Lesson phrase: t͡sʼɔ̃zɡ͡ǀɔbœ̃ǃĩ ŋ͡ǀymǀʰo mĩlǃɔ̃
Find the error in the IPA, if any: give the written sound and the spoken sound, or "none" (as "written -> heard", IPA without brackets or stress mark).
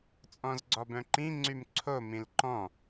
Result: none